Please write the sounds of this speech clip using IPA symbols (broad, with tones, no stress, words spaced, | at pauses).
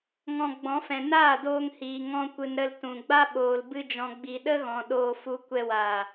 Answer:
ŋɔ̃˧ɡ͡bɔ̃˨˦fɛ̃˨ naː˦˨doː˧ŋhiː˨ ŋɔ̃˧kʷɨ˨n ɾə˧ltũ˨ɡ͡ba˦ ɓoː˨l bɨ˧d͡ʒɔ̃˨ɡ͡bi˨ ɗə˦ɣɔ̃˨ ɗoː˧fu˧ kʷɛ˧waː˨